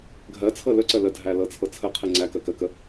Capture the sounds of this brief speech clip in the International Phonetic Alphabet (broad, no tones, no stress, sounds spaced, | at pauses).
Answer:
ɡʱ ɜ t͡sʰ ɤ l ɵ ǀ ɜ l ə dʱ æ l ɤ t͡sʰ ɤ t͡sʰ ə qʰ i ŋ͡ǀ æ k ɜ k ɜ k ə